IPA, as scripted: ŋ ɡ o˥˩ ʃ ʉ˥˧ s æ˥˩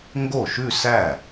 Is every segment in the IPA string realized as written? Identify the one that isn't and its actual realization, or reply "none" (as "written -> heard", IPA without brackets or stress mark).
none